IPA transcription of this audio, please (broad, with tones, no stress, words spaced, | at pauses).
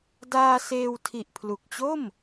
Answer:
daː˧ seː˧w tʰi˨˩ʔpʰlu˨˩k̚t͡ɕo˥˩m